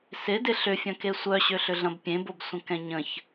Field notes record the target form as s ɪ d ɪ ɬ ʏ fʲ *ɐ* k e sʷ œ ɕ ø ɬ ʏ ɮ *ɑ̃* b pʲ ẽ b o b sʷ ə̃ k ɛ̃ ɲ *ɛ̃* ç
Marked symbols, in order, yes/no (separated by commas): no, no, no